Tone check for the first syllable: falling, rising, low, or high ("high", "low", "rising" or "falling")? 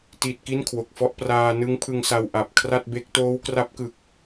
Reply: low